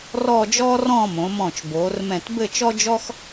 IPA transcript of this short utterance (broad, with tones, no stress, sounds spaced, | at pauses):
r ɔ˥˧ d͡ʒ ɔː˥ r ɔ̃˥˧ m õ˩˧ m ɔ̃˧˩ t͡ʃ b oː˩˧ r m ɛ̃˧˩ t b ɘ˥˧ t͡ʃ ɔ˥ d͡ʒ ɔ˥ x